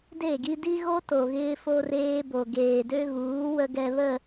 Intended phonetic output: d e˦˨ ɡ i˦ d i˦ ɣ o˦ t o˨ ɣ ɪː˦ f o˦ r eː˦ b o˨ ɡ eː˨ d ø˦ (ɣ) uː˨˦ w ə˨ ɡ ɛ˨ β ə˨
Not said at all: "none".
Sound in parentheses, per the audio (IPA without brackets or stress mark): ɣ